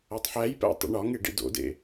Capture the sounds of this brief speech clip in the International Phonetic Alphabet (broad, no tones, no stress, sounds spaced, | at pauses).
æ tˤ ħ æ j p æ̰ tˤ ḭ ɳ ɒ ŋ e ɖ ḭ d o̰ d ḛ